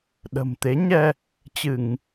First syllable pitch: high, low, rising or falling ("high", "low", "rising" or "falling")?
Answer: low